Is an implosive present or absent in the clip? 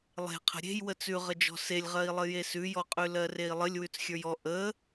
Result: absent